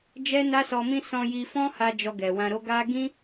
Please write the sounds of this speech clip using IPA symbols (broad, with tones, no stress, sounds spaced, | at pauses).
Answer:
d͡ʒ ɛ˦ n a˦ s ɔ˧ m ĩ˦ s ɔ̃˧ j i˧ f ɔ̃˦ h a˧ d͡ʒ ɔ˧ ɡ ɛ˨ w ã˧ ɾ o˦ ɡ a˦ ɡ ĩ˦